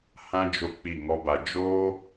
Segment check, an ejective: absent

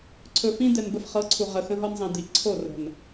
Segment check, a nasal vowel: present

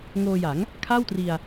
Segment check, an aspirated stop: present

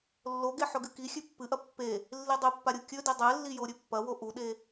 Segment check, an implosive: present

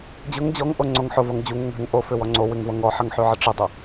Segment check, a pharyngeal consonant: present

